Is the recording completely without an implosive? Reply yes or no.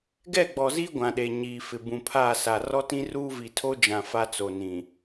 no